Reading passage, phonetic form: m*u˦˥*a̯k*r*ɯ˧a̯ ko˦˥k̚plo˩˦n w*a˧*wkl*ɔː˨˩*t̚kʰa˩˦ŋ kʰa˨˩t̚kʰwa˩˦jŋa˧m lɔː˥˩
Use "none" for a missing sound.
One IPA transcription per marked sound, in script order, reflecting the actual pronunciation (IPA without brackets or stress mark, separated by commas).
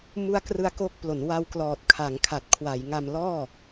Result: u˦˥, r, a˧, ɔː˨˩